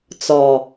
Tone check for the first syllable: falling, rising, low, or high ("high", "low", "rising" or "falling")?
low